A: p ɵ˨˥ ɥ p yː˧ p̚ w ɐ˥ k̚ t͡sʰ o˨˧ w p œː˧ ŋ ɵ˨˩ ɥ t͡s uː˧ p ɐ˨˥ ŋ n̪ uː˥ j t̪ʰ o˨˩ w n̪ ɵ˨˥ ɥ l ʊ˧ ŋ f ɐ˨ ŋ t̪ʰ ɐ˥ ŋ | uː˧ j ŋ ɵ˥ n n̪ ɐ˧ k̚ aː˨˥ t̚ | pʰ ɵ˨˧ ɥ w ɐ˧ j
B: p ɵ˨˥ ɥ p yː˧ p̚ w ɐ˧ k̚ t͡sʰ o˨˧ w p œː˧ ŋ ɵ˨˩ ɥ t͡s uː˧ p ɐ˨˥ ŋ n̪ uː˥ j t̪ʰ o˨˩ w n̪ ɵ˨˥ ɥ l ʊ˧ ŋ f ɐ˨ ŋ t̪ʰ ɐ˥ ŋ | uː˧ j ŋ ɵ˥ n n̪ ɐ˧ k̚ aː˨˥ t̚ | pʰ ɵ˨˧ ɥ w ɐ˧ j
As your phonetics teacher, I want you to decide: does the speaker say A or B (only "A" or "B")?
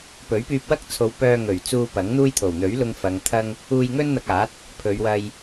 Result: A